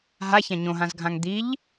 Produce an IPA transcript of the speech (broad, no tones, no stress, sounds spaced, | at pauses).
ɦ a ç ã ɲ õ ɦ ã z ɡʱ ã ŋ d̪ i ʎ